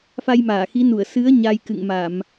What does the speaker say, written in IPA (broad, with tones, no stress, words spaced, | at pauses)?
fa˧jmaː˧˩xi˨˦nu˧˩ə̯ sɨ˨˦ə̯ ɲa˧jkɨ̰˧˨ŋma˧˩˨m